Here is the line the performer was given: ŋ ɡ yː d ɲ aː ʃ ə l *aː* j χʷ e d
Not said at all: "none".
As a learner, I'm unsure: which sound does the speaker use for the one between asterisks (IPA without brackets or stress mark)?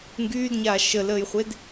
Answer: əː